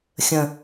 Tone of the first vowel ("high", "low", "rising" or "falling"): low